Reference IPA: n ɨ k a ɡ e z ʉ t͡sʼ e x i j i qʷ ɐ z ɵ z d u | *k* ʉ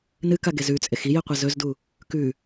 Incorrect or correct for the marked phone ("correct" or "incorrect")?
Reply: correct